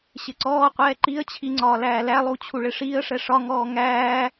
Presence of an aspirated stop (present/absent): present